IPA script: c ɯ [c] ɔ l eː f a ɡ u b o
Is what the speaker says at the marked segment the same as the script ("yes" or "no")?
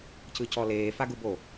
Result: yes